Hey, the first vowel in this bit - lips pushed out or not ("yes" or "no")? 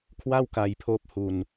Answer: no